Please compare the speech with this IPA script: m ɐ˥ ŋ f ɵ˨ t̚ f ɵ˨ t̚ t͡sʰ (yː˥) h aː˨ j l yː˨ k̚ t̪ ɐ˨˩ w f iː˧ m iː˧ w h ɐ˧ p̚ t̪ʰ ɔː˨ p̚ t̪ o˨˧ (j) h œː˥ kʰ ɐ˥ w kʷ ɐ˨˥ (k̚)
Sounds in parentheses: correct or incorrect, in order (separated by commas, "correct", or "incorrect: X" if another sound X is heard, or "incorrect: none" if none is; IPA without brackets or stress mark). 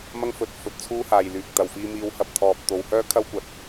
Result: incorrect: uː˥, incorrect: w, incorrect: t̚